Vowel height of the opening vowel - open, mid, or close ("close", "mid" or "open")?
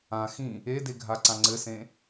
open